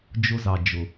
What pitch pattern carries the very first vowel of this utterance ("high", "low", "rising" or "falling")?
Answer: high